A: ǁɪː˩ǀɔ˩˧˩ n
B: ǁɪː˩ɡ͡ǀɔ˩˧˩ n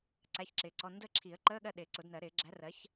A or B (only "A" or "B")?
A